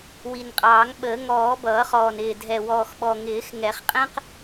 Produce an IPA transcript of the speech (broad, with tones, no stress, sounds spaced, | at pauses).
w i˨˩ n qʼ ɑː˨˩˦ ŋ ɓ əː˨˩˦ ŋ ɔː˨˩˦ b ʌː˨˩˦ χ ɔː˨˩ n ɪː˨˩ dʱ ɛ˨˩ w ɔː˨˩ x ɓ ɔ˨˩ ŋ ɪː˨˩˦ x ŋ ɛ˨˩˦ χ qʼ ɛ̃˥ q